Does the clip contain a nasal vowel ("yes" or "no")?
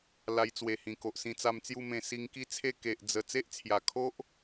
yes